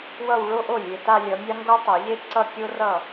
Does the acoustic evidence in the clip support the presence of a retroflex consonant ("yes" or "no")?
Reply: yes